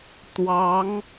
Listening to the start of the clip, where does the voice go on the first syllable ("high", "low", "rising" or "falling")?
rising